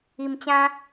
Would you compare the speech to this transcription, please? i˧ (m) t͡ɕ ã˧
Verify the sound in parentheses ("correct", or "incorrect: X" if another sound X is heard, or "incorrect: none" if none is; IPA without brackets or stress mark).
correct